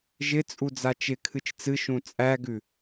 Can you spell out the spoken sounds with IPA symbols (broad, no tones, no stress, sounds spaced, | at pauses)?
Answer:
ʒ ɪ t͡sʼ u d͡z a t͡ʃ ɪ kʰ ɨ t͡ʃ t͡s ɨ ʃ ũ t͡sʼ æ ɡ ʉ